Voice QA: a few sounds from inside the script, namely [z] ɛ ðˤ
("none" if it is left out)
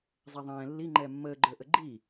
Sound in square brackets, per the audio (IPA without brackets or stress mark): zˤ